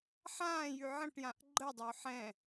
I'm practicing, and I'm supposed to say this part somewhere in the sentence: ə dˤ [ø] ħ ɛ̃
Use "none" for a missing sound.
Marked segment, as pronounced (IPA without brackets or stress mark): ø